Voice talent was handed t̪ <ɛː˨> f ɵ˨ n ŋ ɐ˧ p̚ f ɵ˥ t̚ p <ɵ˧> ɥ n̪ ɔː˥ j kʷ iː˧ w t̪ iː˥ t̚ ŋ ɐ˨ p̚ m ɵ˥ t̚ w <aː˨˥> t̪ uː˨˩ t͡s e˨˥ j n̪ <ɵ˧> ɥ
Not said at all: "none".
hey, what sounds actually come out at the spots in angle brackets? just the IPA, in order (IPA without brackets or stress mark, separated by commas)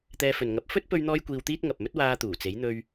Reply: ɛː˧, ɵ˧, aː˧, ɵ˧